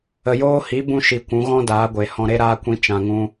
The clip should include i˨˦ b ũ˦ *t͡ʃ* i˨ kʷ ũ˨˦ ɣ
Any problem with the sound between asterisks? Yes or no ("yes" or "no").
yes